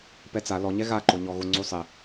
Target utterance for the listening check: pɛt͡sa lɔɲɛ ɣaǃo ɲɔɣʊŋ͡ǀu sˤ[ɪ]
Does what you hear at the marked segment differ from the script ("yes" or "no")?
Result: no